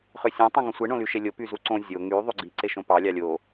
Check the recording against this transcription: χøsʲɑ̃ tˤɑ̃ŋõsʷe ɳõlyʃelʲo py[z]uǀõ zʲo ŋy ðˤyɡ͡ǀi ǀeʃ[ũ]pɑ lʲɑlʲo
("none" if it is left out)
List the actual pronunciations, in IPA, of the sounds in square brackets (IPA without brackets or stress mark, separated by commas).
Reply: z, õ